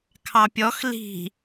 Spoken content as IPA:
kʰ ɑ pʲ ɔ x l i̤

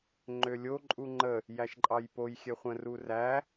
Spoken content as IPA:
ŋ͡ǃ ø lʲ o ǃʼ u ŋ͡ǃ ə | j æ ʃ ǃʼ ɑ j p o j xʲ ɛ χʷ ə̃ r u r æ

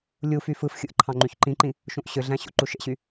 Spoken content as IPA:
lʲ u f y f ɯ f xʲ ɯ ʔ ǃʰ ɑ̃ ŋ͡ǃ y ç ǃ ĩ ǃ ĩ | ʃ ũ ʔ ɕ ø ɮ æ̃ ɕ ṵ ǃ u ʃ ḛ ɕ y

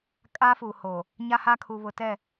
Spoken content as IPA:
kʼ a˦ f u˨ h o˨ | ɲ a˦ h a˦ kʰ u˨ β ʊ˨ t ɛ˦˨

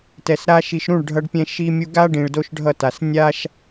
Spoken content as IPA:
t ɛ˧ s ɾ a˦ ʃ i˧ ʃ ɾ ũ˦˨ ɭ ɖʱ ʌ˧ ɖ pʲ ɛ̃˧ ʃ i˧ mʲ u˧ ɡ a˦ ɖ ĩ˨ ɭ d o˦ ʃ ɖʱ ʌ˦˨ t a˨ s nʲ a˧ ʃ

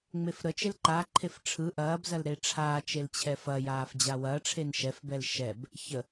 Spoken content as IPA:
ŋ͡m e f ɾ ə t͡ʃ e l ǃ a ǃʰ e f ʈ͡ʂʰ ɯ ʔ ɐː b z ɐ l ɾ e ʈ͡ʂʰ aː t͡ʃ e l t͡ɕʰ ɛ f ɐ j aː f d͡ʑ a w ɐː ʈ͡ʂʰ e n ʃ ɛ f b ɛ l ʃ ɛ b | ç ə

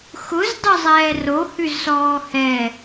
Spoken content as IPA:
x ʊ z dˤ ʉ zˤ ɛː r o h ʉ z s ɔː h ɛ

